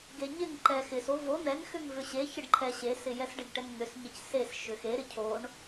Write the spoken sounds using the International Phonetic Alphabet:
ɡeɲɪŋ ǃɛxɪs ovo n̪ɛŋxʏŋ vʏɕeçɪɖǃʰɛ ɕe sɪjɛsɖɪɡ ʈɛŋn̪ʏsɲɛc ses ʃʏxe ɾɪcʰoɳ

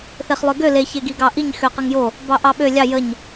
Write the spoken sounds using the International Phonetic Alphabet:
θeχlˠøɡø le çeɡiɡɑʔiɲ xøqəŋjo | bɑʔɑɓø lʲɑ jəɲ

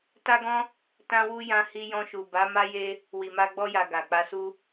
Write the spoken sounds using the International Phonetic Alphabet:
ta˦ɡɔ̃˦ | tã˦wu˦ jã˧hi˧ jɔ̃˧ʃu˨ ba˨˦ma˦ je˧ | wi˨ma˧ɡ͡bɔ˧ja˨ ɡa˨k͡pa˧su˦

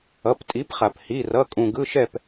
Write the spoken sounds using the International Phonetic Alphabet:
ʌ˩˧˩ptʼi˩˥pχa˩p hi˩˧˩rʌ˩˧˩ kʼũ˩ ɡɯ˩˧˩ʃɛ˧˩p

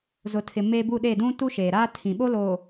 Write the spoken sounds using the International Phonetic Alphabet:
zʊ˨tʰɪ˨ me˦ bu˦˨ ɗe˦˨dũ˦ tu˦ʃeː˨ɾaː˦ tʰĩ˨ɓo˦ loː˨

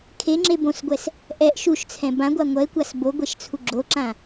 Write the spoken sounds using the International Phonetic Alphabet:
kʰeŋ͡ǁe bõsɡʷɛs | ʔɛʔ ʃuʃt͡sʰɛ̃ bãɡʷa ŋʷʌe̯kʷas boɡʷeʃt͡sʰu ɡ͡ǁoǁã

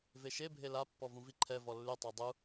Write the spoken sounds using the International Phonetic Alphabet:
veʃe bʱelapːɔ vũviǃʰɛvɔ lːytˤa dˤu

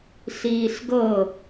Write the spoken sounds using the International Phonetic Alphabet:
ɬiːɬɡɤ

